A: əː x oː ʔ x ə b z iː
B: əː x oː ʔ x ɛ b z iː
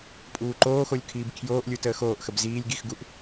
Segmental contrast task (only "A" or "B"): A